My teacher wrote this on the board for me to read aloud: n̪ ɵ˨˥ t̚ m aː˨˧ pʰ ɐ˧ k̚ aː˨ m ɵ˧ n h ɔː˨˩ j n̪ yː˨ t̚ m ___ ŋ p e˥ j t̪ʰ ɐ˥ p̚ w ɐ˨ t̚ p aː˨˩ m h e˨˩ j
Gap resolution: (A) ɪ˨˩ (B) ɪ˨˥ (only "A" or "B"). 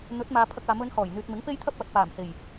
B